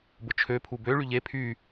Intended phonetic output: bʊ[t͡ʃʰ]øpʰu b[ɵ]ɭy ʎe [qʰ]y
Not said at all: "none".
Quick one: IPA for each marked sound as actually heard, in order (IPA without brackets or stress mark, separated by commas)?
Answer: t͡ʃʰ, ø, pʰ